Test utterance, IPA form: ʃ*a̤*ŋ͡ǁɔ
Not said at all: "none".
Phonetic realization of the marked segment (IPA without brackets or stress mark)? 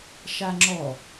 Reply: a